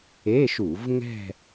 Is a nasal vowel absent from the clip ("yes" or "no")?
yes